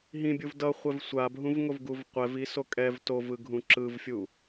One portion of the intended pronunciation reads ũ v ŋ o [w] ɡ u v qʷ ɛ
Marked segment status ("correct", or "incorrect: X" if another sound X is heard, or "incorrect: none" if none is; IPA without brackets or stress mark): incorrect: v